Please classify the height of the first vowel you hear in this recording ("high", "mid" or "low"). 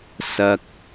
low